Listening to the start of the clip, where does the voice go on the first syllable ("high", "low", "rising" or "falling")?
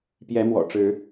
rising